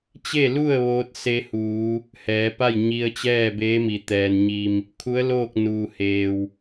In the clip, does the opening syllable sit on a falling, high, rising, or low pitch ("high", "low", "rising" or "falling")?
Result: falling